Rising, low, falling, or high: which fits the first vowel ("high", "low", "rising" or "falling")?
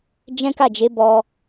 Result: high